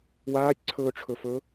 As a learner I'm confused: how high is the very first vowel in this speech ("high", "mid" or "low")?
low